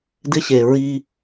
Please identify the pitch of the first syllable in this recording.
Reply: high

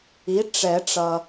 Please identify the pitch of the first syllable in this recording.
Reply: rising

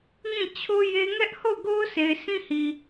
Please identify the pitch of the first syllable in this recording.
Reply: falling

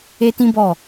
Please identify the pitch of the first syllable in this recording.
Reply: high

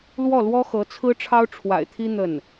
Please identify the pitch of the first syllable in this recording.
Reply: falling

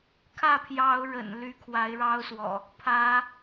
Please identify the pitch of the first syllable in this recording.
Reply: falling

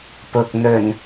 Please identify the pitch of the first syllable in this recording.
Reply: low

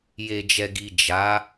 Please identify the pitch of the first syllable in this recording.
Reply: low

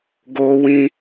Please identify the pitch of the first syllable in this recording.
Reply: high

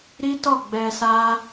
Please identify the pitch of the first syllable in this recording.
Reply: high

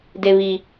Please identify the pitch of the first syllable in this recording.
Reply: low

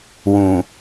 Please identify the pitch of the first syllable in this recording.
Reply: low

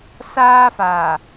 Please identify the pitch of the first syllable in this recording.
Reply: high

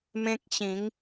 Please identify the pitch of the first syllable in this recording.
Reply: high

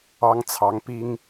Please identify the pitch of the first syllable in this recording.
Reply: high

